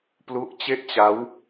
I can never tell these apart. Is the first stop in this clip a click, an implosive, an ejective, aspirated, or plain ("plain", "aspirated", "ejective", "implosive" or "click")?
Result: plain